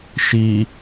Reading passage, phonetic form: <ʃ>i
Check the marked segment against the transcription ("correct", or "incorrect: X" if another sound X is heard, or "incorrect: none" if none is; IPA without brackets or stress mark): correct